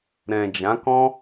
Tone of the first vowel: low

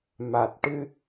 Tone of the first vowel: low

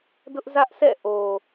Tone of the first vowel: high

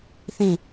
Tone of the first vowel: falling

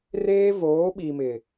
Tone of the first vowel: high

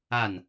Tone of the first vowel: falling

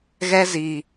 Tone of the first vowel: high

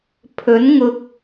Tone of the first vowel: rising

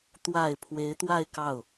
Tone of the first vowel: low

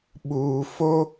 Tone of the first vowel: low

